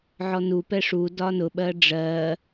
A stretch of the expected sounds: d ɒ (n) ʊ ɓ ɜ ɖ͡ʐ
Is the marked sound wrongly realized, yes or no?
no